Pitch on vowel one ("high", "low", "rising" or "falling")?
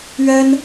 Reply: high